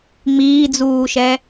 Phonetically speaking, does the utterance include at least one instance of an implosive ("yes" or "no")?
no